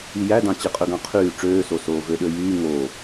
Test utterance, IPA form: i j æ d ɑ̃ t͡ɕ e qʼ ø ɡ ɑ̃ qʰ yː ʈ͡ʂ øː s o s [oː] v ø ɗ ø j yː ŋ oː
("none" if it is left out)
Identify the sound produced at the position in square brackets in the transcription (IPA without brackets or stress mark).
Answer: oː